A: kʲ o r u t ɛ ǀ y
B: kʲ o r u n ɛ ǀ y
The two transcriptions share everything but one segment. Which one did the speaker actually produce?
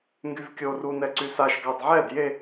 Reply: B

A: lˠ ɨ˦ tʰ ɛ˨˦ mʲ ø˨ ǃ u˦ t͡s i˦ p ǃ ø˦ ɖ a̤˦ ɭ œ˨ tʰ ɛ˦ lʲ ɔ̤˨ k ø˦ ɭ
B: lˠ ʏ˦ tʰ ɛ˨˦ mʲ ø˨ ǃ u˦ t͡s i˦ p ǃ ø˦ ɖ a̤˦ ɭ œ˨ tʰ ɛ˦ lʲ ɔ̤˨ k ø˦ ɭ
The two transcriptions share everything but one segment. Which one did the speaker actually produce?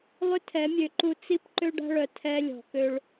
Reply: B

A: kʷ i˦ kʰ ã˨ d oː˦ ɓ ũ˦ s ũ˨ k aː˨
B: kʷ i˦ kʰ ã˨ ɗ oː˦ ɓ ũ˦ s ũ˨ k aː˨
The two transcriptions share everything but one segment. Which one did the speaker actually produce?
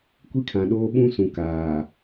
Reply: B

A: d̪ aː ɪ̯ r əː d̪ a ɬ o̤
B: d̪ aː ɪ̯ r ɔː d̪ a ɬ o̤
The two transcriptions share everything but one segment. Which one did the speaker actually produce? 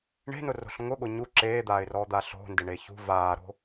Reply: B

